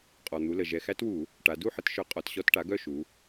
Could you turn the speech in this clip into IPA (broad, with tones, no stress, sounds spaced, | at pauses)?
qʼ ɔ˩ n̪ u˩˧ l ə˩ ʒ ɛ˩ x æ˧˥ t w u˧˩˧ | ʈ a˩˧ d u˥˨ ħ ə˩˥ t ʃ œ˩˥ qʼ ɔ˩ t ɕ ɔ˧˩˧ t ʈ a˩˥ ɡ œ˥˨ ʃ u˩˧